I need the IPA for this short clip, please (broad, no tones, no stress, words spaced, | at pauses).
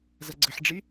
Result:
zɐɡ͡ǀəħɖ͡ʐi